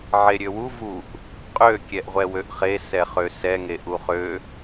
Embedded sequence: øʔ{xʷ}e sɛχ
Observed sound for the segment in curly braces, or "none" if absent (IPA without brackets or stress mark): χ